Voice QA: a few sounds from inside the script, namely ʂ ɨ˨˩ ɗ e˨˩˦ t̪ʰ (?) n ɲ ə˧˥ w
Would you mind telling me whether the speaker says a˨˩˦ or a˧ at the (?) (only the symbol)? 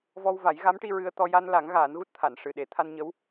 a˧